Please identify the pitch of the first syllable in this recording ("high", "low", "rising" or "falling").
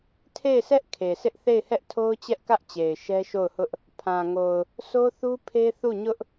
falling